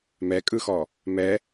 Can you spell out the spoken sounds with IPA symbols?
m ɛ kʼ ɯ x ɔ | m ɛ

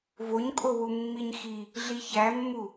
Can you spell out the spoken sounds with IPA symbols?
v o ɲ kʼ o w u mː i ɲ x i | ɮ i ç æ mː u

